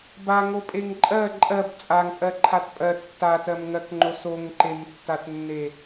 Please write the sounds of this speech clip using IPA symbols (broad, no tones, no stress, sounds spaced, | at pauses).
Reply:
b a ŋ o pʼ e ŋ ǃʼ ɜ ǃʼ ɜ b t͡sʼ a ŋ pʼ ɜ ǃʰ a t pʼ ɜ tː a t ɜ m ŋ ɜ k ŋ͡ǃ o s o ŋ ǃ e m tː a t nː e